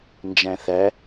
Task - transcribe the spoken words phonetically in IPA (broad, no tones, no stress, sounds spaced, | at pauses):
n d͡ʒ æ̃ θ æ